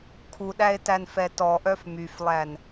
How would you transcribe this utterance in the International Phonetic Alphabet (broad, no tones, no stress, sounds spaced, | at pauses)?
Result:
kʰ u ɗ æ e̯ t æ n f ɛ t ɔ ʔ œ f m y f lˠ æ n